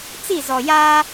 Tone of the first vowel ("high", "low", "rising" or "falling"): falling